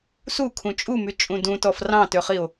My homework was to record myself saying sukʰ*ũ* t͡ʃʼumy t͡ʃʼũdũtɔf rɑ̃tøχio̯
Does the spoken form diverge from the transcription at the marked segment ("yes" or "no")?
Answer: no